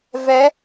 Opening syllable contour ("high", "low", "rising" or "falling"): rising